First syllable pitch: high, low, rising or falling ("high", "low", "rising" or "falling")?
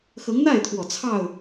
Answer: rising